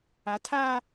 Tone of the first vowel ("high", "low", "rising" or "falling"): rising